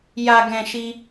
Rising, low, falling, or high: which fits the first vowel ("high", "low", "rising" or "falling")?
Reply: low